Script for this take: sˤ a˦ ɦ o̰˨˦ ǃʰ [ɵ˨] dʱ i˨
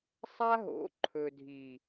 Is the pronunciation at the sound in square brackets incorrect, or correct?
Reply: correct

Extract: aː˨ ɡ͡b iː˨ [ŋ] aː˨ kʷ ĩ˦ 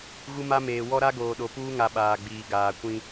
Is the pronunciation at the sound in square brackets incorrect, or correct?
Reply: incorrect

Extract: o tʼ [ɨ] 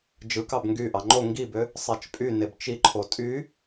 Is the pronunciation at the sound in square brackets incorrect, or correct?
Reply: incorrect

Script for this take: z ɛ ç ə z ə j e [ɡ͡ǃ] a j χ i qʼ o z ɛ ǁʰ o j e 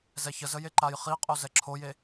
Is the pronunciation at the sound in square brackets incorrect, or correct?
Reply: incorrect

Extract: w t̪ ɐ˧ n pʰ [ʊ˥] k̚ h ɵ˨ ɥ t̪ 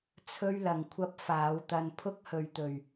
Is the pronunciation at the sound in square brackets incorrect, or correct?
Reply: correct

